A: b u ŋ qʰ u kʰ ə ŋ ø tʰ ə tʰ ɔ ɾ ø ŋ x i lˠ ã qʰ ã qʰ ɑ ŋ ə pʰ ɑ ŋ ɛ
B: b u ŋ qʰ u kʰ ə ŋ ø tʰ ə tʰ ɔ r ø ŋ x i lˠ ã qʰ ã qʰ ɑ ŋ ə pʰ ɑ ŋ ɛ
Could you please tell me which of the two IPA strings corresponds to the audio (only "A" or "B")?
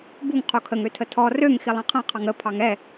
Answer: B